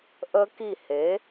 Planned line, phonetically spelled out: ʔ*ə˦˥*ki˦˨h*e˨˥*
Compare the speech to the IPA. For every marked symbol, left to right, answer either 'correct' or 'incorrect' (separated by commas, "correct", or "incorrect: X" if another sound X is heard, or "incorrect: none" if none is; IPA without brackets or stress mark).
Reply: correct, correct